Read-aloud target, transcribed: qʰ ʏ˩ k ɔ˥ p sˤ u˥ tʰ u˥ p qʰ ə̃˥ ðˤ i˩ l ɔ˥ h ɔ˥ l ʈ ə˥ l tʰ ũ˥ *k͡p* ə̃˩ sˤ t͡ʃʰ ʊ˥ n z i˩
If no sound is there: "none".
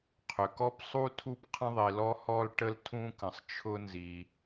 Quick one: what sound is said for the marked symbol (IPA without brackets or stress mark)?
k